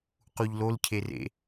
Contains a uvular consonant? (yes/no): yes